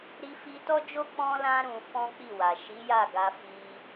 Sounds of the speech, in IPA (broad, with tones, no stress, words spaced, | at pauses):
ɾi˧ fi˧tɔ˦d͡ʒo˦ k͡pɔ̃˦lã˦ ɾũ˧fɔ̃˦k͡pi˦˨wa˨ ʃi˨˦ja˦˨ɡa˧ fi˧